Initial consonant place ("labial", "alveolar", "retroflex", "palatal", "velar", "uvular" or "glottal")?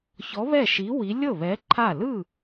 palatal